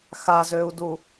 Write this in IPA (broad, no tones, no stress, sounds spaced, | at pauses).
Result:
x a z øː u̯ d u